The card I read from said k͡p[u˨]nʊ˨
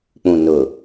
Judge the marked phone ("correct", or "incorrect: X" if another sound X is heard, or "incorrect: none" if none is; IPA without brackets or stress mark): incorrect: ũ˨